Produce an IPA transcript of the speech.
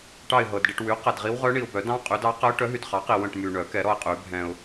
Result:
ʈ ɑ˦˨ ɪ̯ ɦ ɤ˨ d ɖ i˦˨ ʈ w y˩˥ q ɛ˨ d ʁ i˧˥ w ʁ œ˧˥ ɳ i˨ ʊ̯ b œ˨˩˦ d ɑ̃˧˥ qʼ y˩˥ d ɑ˧˥ q ɛ˧˥ ʊ̯ ʈ œ˩˥ ɦ y˨ d χ ɑ˩˥ q i˨ w œ̃˦˨ ʈ m y˨ ɳ œ˨˩˦ k ɛ˨˩˦ ɾ ɔ˦˨ ɪ̯ qʼ y˨˩˦ bʱ ɛ̃˨ ʊ̯

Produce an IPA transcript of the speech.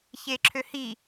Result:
ç eː ǁʰ ø h i

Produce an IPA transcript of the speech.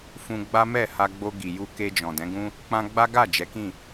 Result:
f ũ˧ ɡ͡b a˦ m ɛ˦˨ h a˧ ɡ͡b o˧ ɡ i˨ j u˧ k e˧ d͡ʒ ɔ̃˨ d ɛ̃˨˦ ɡ ũ˦ | k͡p ã˧ ɡ͡b a˦ ɡ a˦˨ d͡ʒ ɛ˨˦ k ĩ˦˨

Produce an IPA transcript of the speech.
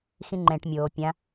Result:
x ĩ ŋ͡ǃ ɛ̃ ʈ mʲ oː pʲ ã

